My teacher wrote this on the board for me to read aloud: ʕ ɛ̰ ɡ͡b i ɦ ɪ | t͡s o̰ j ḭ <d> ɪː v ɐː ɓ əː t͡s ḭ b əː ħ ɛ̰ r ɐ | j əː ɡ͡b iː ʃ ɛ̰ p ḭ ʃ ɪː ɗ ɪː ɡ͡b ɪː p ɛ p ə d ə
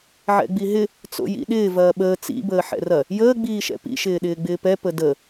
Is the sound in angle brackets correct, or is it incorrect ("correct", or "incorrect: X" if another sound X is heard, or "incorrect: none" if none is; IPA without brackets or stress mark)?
incorrect: ɗ